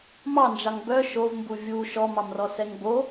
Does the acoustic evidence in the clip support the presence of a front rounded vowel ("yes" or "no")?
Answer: yes